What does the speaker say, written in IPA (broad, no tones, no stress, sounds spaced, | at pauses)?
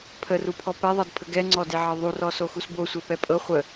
pʰ ə r u pʰ ɔ p ɛ ðˤ ɤ d pʰ ə ɡ ɛ ŋ͡ǀ ɔ d e ʕ ɤ ðˤ u r ɔ s o x u s b o sʷ e p ɛ pʼ ɤ χʷ ə